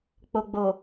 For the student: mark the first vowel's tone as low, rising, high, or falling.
low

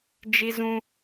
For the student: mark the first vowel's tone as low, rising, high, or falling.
high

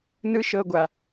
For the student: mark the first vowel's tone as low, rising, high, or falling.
high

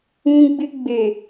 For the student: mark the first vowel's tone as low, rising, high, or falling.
high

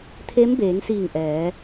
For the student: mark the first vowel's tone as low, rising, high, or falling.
rising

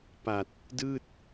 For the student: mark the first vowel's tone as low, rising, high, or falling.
low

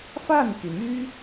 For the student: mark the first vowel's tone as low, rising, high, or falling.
falling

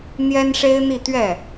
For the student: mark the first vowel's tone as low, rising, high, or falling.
high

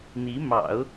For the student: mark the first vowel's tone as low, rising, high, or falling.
rising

